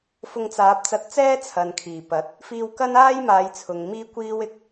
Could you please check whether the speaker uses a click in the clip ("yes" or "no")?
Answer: no